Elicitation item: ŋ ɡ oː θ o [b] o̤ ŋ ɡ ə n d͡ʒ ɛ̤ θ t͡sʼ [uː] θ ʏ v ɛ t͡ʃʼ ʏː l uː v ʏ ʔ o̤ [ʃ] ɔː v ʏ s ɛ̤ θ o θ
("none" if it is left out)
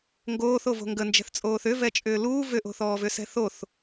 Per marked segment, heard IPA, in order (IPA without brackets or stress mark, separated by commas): v, oː, θ